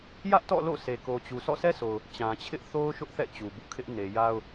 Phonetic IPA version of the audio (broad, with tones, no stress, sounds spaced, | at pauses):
j ä˦ ʔ t ɔ̰˦˨ l o̰˦˨ sʰ e˨ k o˨ t͡ɕ u˨ s ɔ̰˦˨ sʰ ɛ˦ sʰ o˨ ʊ̯ | t͡ɕ ã˨ t͡ɕʰ ɪ˦ ʔ θ o˦ ʊ̯ ʃ ʊ˦ ʔ θ ɛ̰˦˨ t͡ɕ u˨ b ṵ˦˨ kʰ ɪ˦ ʔ n e˨ j a˦ ʊ̯